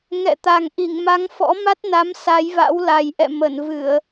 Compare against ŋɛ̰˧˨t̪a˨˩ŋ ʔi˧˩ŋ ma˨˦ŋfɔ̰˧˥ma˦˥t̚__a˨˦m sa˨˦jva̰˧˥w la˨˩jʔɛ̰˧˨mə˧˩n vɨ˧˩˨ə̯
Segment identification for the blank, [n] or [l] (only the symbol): n